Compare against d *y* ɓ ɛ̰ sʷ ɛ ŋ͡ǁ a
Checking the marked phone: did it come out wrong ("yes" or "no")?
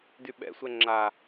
no